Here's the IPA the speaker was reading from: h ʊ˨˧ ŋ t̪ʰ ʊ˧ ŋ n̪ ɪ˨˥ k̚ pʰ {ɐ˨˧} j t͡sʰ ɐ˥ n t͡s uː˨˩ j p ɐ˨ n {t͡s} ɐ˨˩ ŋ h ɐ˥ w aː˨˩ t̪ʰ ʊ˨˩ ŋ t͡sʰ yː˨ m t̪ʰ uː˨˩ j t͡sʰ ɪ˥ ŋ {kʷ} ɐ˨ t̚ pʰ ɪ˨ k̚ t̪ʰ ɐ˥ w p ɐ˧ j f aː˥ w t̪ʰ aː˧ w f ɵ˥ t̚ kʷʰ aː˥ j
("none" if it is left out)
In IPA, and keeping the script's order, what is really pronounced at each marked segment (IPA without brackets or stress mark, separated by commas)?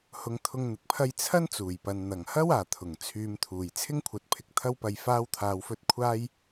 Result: ɐ˥, n̪, kʷʰ